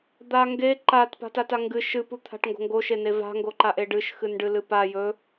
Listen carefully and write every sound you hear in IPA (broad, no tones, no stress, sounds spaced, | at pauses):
d̪ a ŋ ɡ e ǃ a t p a̤ t a t a ŋ ɡ ɨ ʃ ɨ p u t̪ʰ a̤ ʈ ŋ ɡ o̤ ŋ ɡ o ʃ e n e v a̤ ŋ ɡ o ǃ a ʔ e ɖ ɨ ʃ x ɨ n ɖ ɨ l ɨ p a j ɵ